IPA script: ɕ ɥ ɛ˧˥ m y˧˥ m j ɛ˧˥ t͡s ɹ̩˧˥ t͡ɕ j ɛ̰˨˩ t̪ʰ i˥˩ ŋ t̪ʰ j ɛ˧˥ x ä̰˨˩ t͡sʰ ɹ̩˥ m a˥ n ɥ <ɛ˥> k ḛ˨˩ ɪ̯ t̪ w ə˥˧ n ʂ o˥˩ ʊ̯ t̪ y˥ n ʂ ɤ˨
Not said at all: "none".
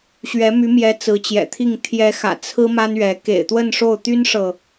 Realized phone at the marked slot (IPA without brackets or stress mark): ɛ˧˥